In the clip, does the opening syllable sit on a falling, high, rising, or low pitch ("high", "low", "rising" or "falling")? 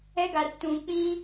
high